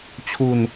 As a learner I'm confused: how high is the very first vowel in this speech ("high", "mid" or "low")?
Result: high